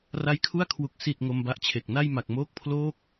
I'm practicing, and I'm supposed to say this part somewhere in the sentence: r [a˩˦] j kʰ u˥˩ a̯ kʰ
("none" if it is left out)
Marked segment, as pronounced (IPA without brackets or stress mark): a˦˥